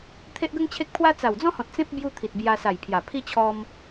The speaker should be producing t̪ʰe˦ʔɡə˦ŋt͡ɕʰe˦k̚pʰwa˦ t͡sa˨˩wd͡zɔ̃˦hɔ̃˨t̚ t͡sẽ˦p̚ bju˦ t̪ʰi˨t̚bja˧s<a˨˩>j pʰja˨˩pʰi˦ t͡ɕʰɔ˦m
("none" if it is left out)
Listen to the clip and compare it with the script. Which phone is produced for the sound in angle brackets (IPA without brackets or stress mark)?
a˨˩